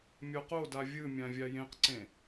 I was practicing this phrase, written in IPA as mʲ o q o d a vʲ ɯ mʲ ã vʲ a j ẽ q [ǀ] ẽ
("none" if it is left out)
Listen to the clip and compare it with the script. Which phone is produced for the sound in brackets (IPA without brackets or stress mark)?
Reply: ǀ